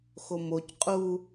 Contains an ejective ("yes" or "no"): yes